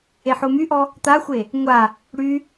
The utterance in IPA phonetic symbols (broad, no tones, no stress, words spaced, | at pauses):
eħomyʔɔ | t̪axʷe | ŋʷa | ɽy